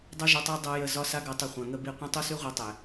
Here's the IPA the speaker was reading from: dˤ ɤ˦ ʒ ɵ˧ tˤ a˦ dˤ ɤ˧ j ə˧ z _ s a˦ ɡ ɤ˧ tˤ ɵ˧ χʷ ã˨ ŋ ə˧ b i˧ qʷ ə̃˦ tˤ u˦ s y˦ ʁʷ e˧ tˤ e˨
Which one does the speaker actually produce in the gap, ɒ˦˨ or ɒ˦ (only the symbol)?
ɒ˦